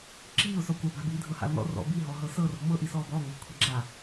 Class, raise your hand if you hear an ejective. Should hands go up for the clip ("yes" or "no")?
no